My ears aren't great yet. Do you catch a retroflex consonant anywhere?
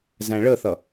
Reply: yes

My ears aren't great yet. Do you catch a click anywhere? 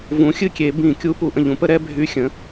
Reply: no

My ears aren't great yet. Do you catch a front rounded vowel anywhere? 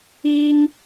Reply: no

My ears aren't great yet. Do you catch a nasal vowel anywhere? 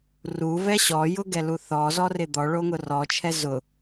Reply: no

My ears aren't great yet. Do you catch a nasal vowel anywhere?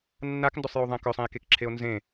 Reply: yes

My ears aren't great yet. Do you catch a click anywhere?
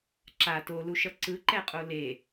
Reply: yes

